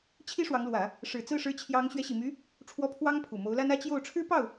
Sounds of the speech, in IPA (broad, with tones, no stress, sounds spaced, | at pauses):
t͡ɕʰ i˥ ʂ w ɑ˧˥ ŋ l w ä˨˩˦ | ʂ ɻ̩˨˩ t͡s ɹ̩˥˩ ʂ ɻ̩˧˥ t͡ɕʰ j ɑ˧˥ ŋ ɕ ɥ ɛ˧˥ ɕ i˨˩ m y˧˥ | ʈ͡ʂʰ w ɔ˧˥ pʰ w ɑ˥ ŋ pʰ u˨˩ m o˧˥ ʊ̯ l a˥ n ä˥ t͡ɕ j o˥˩ ʊ̯ ʈ͡ʂʰ ɻ̩˥ p ɑ˥˩ ʊ̯